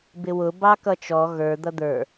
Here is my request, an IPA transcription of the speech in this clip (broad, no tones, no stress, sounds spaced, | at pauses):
b ɪ w ʊ b ɑ k ʌ t͡ʃ ɔ ɣ ə˞ d̪ ʌ d̪ ə˞